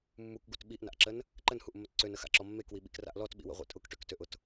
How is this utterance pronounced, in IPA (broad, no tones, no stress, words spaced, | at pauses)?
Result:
mːukɡut ɓiʔna̰ʔǁən | ǃənhuʔmːət ǀønəxa̰ǁɔ mːekwiɓḭkra̰ʔ lɔtɓḭwə̰ʁʷḭ tʼʊkʈøktøʔʊt